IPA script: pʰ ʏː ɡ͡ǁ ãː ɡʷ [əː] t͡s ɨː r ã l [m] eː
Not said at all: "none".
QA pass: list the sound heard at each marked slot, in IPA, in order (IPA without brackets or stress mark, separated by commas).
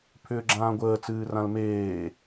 əː, m